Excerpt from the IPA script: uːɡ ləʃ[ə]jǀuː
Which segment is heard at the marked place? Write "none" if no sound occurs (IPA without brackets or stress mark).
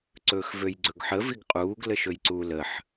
ɵ